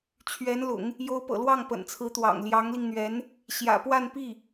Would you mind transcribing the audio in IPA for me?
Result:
t͡ɕʰ ɥ ɛ˧˥ n l ʊ̰˨˩˦ ŋ | j o˧˥ ʊ̯ p ɤ̰˨˩ l w ɑ˥˩ ŋ p ə̰˨˩ n t͡sʰ ɹ̩˧˥ t̪ w ɑ̰˨˩ ŋ l j ɑ˧˥ ŋ l i˧ ŋ n̪ ɥ ɛ˧˥ n | ɕ j ä̰˨˩ p w a˥˧ n p i˥˩

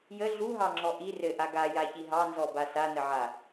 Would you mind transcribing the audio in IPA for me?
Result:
j ə ɮ u ɦ ɑ ŋ͡ǁ ɔ ʔ i r ɘ ʔ a ɡ a j a ç i ɦ ɑ n z ɔ b a s a n ə ʕ a

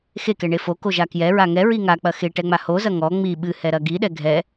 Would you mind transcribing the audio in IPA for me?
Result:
x e k ɛ ɳ e f o k o ʒ a k j ɛ ɹ a ŋ ɛ ɹ i ŋ a k͡p ɐ x e ʈ ɛ ŋ͡m a h o z ɐ ŋ ɔ ŋ͡m i ɓ ɨ h ɛ ɾ ɐ ɡ i ɗ ɛ ɡʱ ɛ

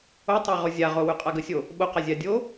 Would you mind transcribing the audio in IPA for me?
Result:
o tˤ a ʁ o zʲ a ʁ o w ʉ qʼ a ɡ ə sʲ o | ɓ o q a zʲ a dʲ o

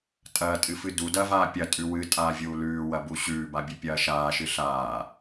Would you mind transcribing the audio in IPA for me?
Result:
tʼ ɐː tʼ ɨ f ɨ d u d ɐː v aː pʲ ɐ tʼ ʉ w ɨ tʼ aː vʲ uː l ʉː w ɐ b u ɕ ʉː b a bʲ ɨ pʲ ɐː ʃ aː ʃ ɨ ɬ aː

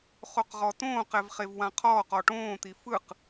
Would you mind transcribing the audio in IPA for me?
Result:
χ o q ʁ ɔ t õː q ɛ v χ e v w ã qʰ ɔː q ɔ ʈ õː t̪ i f ɯ q

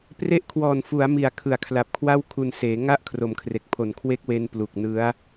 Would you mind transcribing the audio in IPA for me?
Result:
p r e˦˥ ʔ kʰ w ɔː˨˩ n f u˩˦ a̯ m i˨˩ a̯ kʰ ɯ˨˩ a̯ kʰ l a˨˩ p̚ kʰ w a˥˩ w kʰ u˧ n s eː˩˦ ŋ a˥˩ ʔ kʰ r o˩˦ m kʰ r e˨˩ k̚ pʰ o˨˩ n kʰ w e˦˥ k̚ w e˧ n p l u˨˩ k̚ n ɯ˦˥ a̯

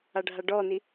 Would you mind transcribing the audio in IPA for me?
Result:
a ɖʱ a ɖ ɔ n i

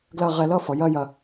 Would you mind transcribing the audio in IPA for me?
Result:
ɡ l ɐ˥˧ ʁ ɛ˧ l ʌ˥˧ f ʌ˩˧ j ɐ˥˧ j ɐ˧

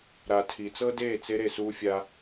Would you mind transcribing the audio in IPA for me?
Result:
ɾ a˨ tʰ i˨ t͡s ɤ˦ d eː˦˨ t͡s e˧ ɾ e˨ s uː˧ fʲ a˧

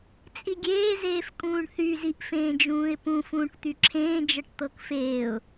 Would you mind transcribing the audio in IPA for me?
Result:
t͡sʼ i ɡʲ eː z eː f kʼ ũː ɳ θ y z i ʔ f ẽː d͡ʒ ũː ɪ̯ p ũ f ũː ʈ t̪ y ǁʰ ẽː d͡ʒ ɤ ʈ t̪ ɤ k f eː ʊ̯

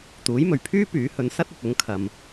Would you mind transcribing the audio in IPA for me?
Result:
t̪ uː˨˥ j m ɵ˨˩ ɥ pʰ yː˥ p yː˨˥ h ɵ˨˥ n s ɐ˥ t̚ ɐ˨ t̚ ʊ˨˥ ŋ kʰ ɐ˨ m

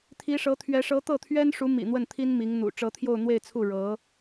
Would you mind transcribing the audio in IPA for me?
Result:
t̪ʰ i˧˥ ʂ ɤ˧˥ t̪ʰ ɥ ɛ˧˥ ʂ ɤ˧˥ t̪ ɤ˥˩ t̪ʰ ɥ ɛ˥ n ʂ u˧˥ m ḭ˨˩ n̪ w ə˥˩ n t̪ʰ i˥ n m i˧˥ ŋ n̪ ṵ˨˩ ʈ͡ʂ ɤ˧˥ t̪ʰ j o˥˧ ʊ̯ n̪ w e˥˧ ɪ̯ t͡sʰ u˥˩ ɻ ɤ˧˥

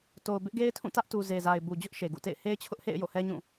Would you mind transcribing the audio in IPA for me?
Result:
t o˨ ʊ̯ b ɪ˦ ʔ ɡ e˦ ɪ̯ tʰ ũ˦˨ t ä˦ ʔ t u˨ z e˨ z a˨ ɪ̯ b u˨ d͡ʑ ʊ˦ ʔ ʃ e˨ ɡ ṵ˦˨ t ḛ˦˨ ɪ̯ h e˦ ɪ̯ t͡ɕʰ ʊ˦ ʔ h ḛ˦˨ ɪ̯ j o̰˦˨ h ɛ˦ ɲ ũ˦˨

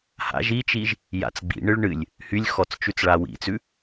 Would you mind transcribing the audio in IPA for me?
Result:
h a̰ ʒ i t͡ʃ i ʒ | j a̰ t͡s ɡ͡b ḭ ɳ ɨ ɭ ɳ ɨ lʲ | h y lʲ x ɔ t͡s t͡ʃ ʉ t͡s ɭ a w ḭ t͡s ʉ

